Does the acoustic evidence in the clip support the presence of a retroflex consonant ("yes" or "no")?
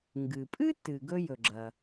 no